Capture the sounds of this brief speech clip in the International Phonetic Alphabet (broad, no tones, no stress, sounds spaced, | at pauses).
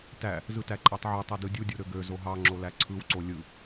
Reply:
t æ | z ɯ t æ ǃʼ æ tˤ ʕ y tˤ e d ɯ dʲ u dʲ o ɾ ø ɡ ø z o ɦ ɑ ŋ͡ǁ o l æ ǀʰ ɯ w ǀ o lʲ ɯ